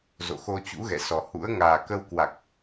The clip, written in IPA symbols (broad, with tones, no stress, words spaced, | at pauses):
zo̰˧˨xo˧ t͡ɕṵ˧˥ɣɛ̰˧˨sɔ˨˩hṵ˧˥ə̯ ŋaː˨˩kə˧wkwa˨˩k̚